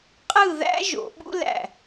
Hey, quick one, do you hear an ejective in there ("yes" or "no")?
yes